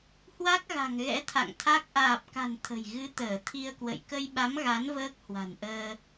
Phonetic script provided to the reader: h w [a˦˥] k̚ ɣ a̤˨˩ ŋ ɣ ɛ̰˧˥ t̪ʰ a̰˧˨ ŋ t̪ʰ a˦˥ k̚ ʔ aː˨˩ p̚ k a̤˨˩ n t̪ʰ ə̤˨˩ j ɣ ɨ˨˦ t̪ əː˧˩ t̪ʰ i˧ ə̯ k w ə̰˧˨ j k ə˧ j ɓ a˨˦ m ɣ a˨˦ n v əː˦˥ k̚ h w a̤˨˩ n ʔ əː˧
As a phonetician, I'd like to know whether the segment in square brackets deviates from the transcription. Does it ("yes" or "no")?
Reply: no